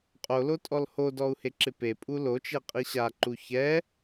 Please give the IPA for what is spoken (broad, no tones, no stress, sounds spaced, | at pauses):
qʼ o l o tʼ ɔ l h o d ɔ u̯ h e ǁ ɪ p e pʼ u l o t͡ʃ e qʼ i ɕ a ǃ u ç ɛ